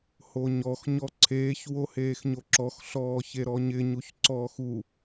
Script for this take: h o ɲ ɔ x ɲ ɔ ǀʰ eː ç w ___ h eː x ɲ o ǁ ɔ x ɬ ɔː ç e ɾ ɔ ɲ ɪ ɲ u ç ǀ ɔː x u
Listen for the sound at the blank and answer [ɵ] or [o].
o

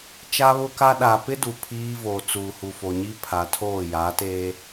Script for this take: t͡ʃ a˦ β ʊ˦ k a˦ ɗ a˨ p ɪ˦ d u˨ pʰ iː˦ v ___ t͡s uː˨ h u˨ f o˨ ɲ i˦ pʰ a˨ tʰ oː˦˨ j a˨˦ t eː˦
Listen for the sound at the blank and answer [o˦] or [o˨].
o˨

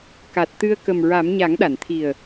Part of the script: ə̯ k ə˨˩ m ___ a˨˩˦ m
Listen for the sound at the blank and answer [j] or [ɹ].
ɹ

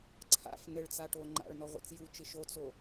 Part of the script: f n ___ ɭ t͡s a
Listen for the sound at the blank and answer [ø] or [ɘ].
ɘ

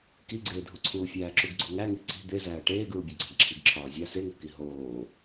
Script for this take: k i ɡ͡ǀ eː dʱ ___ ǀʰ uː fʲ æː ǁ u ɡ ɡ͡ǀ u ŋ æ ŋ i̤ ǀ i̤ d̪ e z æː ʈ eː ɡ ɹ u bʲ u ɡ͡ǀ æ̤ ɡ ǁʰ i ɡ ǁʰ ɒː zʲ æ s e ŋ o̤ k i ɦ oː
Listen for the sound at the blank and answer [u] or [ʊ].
u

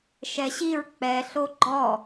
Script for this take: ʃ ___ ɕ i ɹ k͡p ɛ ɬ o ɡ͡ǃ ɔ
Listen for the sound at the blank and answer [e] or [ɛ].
ɛ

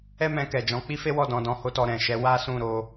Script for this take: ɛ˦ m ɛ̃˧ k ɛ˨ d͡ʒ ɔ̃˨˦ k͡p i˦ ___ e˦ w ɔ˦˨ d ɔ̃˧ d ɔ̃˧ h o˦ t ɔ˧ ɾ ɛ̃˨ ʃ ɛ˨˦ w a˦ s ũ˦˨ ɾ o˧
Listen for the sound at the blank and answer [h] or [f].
f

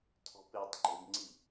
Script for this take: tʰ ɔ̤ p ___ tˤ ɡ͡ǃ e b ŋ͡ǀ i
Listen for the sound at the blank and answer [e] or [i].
e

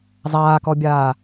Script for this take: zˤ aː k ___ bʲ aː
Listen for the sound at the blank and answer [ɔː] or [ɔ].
ɔ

